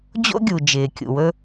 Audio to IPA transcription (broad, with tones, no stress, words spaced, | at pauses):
d͡ʑo̰˥ɡʲu˩ d͡ʒɪː˩kʲṵ˩wɵ˧